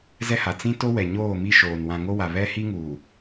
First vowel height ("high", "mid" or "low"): mid